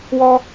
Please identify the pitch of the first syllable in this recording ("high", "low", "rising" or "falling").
high